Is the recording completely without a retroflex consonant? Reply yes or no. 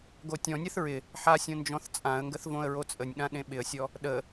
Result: yes